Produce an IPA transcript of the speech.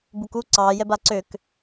buku ǀɑ jɛbaǀøk

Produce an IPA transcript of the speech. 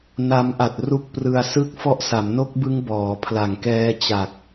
na˦˥m ʔa˨˩t̚ ru˦˥k̚prɯ˧a̯sɯ˥˩k̚ fɔ˦˥ʔsa˩˦mno˦˥k̚bɯ˦˥ŋ bɔː˩˦pʰla˨˩ŋkɛː˦˥t͡ɕa˨˩k̚

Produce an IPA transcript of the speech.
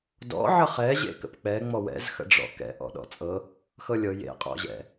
dɔ̰ ʕəχɛ ʑḛkə̰pk͡pɛ ŋ͡mɔwɛ̰z xə̰ɖ͡ʐɔ̰kɛ̰ ʔɔ̰ɗɔ̰t͡sʼɤ | xɤlʲɤ jḛ qʼɔ̰ʑɛ̰

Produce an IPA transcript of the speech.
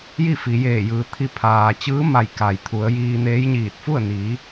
ji˥˨ fi˩˧jeː˧˩jɯː˩t̪ʰi˧ pʰaː˩t͡ɕɯː˧˥ma˧˩j ka˩jt̪ʰu˩˧ə̯ jiː˧neː˧˥jɲiː˧˩t̚ fu˥˨ə̯ niː˩˧

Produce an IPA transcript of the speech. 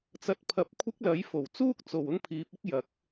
t͡sɐ˨t̚pʰɐ˨˥p̚ kʷʰɪ˥k̚lɐ˨˥jfo˨˩w t͡suː˥k̚t͡so˨˩w ʊ˥ŋpʰiː˨˥p̚ɪ˥k̚jɐ˨˥k̚

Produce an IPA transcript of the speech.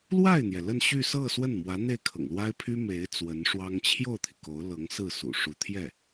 lwa˥˩ɪ̯n̪jɛ˩ lə˥˧nɕy˥˧ sɤ˥˧ swə˥˩nmwä˧˥ n̪e˥˩ɪ̯kʰɤ̰˨˩ŋlwa˥ɪ̯pʰy˥ me˧˥ɪ̯ t͡swə˧˥nʂwɑ˥ŋ t͡ɕʰjo˥˩ʊ̯t̪ʰi˩ ko˧˥ʊ̯lɤ˧˥ŋsɹ̩˥˩ sṵ˨˩ʂu˧˥t̪ʰjɛ˥˩

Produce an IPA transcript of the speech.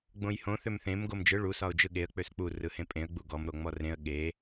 ɡ͡bõjhõ θømθẽm ɡomd͡ʒɯ ɭu sɒʊ̯d͡ʒɯɠeə̯ k͡pøsk͡pu rɯhẽpʼẽə̯ ɡ͡buɡɔm ɾoŋ͡mɔrẽə̯ ɠe

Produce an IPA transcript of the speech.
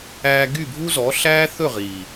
æː˧ ɡy˦˨bʱu˦zɔ˨˦ ɬæː˦ θɵ˦˨ʁiː˨

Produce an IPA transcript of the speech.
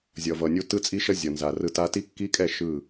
zʲʌ˨vʌ˨nʲu˦ tɯ˦t͡sʼi˦ʃʌ˦ zʲʌ˨nza˨rɯ˦ ta˦ ti˦kːi˦kʼɛ˦˨ ʃɯ˦˨

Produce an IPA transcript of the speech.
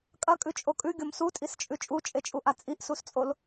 kʼɐkʼʉt͡ʃʼo kʼʉɡʲom sutʼist͡ʃʼʉ t͡ʃʼut͡ʃʼet͡ʃʼuʔa t͡sʼiʔsust͡sʼol

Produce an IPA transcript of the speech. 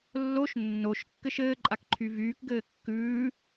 lːoʃ nːoʃ kːɘʃɘː ǃʼakǃʰyvyːk ɡɘːkːʉː

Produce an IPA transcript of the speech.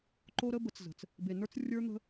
ǃo˦ɾə˦bə˨˦t͡szə̤˨t͡s | be˨nə˞˦t͡srʲə˞˦n̪ə̤˦

